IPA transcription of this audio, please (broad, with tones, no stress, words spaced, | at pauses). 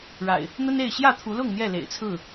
ɻa̰˨˩ɪ̯ | n̪ə˦ne˥˨ɪ̯ ɕjä˥˨t̪ʰu˨˦lʊ˥˨ŋ n̪jɛ˥˨lḛ˨˩ɪ̯ t͡sʰɹ̩˥˨